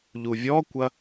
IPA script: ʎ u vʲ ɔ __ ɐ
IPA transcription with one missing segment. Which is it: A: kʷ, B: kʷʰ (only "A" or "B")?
A